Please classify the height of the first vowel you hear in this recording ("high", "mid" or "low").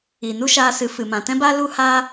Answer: high